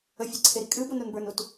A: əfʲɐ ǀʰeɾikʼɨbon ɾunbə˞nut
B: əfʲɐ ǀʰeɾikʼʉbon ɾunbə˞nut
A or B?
A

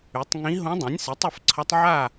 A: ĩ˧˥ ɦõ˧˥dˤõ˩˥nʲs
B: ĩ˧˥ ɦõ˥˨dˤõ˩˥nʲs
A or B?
A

